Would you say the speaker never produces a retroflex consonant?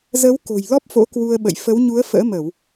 yes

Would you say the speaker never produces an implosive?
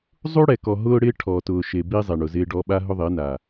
no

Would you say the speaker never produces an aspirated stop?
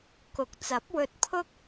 no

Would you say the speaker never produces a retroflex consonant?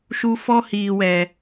yes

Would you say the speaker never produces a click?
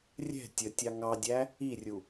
yes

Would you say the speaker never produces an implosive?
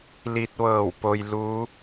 yes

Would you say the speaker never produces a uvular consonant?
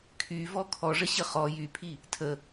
no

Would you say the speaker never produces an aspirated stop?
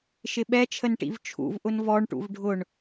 no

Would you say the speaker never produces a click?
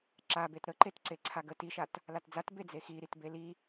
no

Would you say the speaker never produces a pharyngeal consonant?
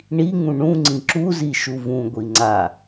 yes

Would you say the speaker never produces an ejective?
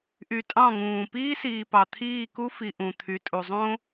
no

